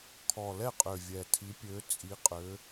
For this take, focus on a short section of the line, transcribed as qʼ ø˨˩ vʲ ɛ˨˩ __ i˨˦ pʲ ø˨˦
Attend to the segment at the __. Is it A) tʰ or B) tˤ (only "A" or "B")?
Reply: A